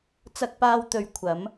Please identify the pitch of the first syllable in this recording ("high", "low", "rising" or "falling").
high